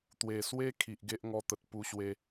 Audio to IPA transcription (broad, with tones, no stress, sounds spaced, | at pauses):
t̪ w e˨˩ s w e˦ kʰ i˨ ʔ ɡ e˦ ʔ ŋ ɔ˧ t̪ ə˨ t̚ p u˧ ɕ w e˧